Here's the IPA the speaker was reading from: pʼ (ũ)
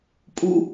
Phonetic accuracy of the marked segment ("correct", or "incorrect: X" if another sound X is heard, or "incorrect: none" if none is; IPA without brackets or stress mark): incorrect: u